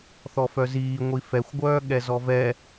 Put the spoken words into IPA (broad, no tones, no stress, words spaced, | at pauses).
θɔfœziː ŋʷifɛxʷɡʷœː ɠɛzɔvɛ